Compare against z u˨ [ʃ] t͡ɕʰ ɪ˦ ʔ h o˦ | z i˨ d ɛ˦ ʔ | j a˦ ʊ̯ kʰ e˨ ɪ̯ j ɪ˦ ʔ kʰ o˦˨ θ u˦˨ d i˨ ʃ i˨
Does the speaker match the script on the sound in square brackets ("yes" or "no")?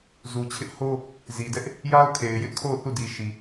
no